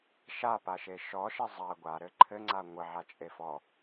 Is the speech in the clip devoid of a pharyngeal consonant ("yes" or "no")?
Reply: no